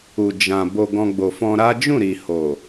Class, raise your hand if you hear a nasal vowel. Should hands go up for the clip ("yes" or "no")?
yes